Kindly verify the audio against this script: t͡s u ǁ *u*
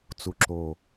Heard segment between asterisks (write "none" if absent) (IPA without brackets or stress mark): o